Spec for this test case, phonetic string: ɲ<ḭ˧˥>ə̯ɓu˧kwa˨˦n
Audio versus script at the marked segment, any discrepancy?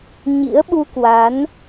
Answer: no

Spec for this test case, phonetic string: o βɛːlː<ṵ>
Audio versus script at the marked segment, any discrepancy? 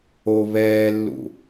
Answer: no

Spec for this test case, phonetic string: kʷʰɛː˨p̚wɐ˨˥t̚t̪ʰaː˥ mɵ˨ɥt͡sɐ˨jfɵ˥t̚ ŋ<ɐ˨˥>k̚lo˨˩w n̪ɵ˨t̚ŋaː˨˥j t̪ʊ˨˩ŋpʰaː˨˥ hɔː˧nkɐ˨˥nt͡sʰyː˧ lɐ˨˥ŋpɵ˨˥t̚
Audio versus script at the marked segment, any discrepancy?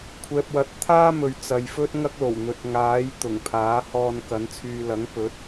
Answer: yes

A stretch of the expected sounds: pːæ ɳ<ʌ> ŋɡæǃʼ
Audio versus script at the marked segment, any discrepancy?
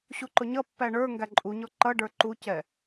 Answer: yes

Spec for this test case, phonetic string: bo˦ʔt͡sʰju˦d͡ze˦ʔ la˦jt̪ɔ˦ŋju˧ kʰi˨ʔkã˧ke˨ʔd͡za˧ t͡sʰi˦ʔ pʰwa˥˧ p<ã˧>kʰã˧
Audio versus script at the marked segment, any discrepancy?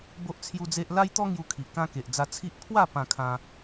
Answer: no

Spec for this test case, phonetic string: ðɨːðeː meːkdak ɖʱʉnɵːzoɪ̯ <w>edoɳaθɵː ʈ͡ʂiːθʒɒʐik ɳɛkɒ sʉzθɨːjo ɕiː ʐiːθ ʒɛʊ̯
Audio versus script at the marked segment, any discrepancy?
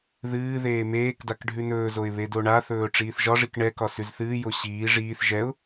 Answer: yes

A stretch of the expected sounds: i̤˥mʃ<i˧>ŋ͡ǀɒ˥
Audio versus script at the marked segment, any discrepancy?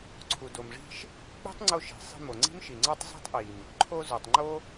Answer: yes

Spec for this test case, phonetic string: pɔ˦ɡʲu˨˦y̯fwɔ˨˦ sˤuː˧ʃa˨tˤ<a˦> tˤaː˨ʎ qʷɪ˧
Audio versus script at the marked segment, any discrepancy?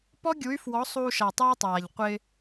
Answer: yes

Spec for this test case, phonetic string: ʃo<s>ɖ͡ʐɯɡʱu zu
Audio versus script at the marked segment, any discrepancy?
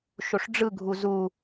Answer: yes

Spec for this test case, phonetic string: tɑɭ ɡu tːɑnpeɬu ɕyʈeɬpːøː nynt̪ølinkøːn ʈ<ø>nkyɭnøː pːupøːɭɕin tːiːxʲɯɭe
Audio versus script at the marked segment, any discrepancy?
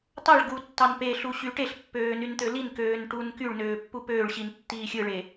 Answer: yes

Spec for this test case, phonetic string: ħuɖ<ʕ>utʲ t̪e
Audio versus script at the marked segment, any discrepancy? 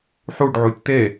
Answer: no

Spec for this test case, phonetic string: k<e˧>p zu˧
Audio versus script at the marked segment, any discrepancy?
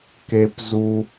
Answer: no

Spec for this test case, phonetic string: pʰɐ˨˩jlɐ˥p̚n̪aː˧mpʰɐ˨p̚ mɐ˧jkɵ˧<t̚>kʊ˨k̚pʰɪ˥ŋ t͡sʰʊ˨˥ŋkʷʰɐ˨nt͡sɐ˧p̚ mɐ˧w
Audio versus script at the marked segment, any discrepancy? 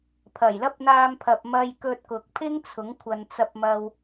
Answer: no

